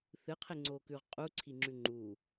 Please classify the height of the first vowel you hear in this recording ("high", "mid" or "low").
high